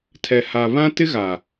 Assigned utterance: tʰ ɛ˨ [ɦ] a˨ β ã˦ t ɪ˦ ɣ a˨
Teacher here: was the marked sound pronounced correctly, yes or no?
no